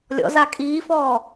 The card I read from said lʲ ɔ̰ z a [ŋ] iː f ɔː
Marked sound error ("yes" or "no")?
yes